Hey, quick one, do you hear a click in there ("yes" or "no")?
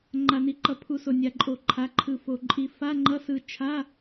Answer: yes